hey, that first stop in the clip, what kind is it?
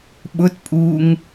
implosive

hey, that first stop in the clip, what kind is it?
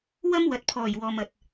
plain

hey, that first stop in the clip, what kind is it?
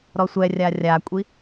ejective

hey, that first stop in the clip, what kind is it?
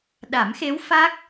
implosive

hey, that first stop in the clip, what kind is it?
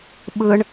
implosive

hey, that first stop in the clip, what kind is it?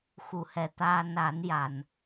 plain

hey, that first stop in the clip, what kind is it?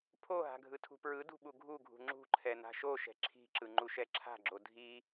aspirated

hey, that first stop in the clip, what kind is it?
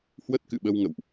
plain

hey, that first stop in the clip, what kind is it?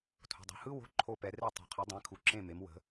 aspirated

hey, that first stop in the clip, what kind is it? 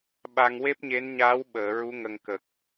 implosive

